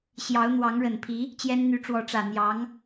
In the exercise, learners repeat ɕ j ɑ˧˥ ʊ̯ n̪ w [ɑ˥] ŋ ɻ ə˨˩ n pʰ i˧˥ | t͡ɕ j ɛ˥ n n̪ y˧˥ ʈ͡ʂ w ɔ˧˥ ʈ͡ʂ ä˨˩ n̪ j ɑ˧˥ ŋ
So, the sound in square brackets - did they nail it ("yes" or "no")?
no